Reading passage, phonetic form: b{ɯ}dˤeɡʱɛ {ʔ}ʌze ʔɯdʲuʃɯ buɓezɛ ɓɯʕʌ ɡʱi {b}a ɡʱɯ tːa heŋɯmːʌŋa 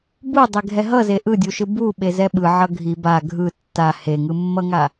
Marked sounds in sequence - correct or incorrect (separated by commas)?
incorrect, incorrect, correct